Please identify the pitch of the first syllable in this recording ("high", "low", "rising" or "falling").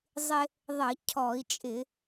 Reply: high